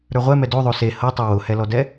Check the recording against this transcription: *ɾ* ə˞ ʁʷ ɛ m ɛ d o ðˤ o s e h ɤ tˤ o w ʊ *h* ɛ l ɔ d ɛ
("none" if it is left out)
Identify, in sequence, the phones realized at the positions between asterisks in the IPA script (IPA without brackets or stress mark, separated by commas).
ɾ, h